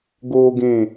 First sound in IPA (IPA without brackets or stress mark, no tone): ɡ